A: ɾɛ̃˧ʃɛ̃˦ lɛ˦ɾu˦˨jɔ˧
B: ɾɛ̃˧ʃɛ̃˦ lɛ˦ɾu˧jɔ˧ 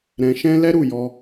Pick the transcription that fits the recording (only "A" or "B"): A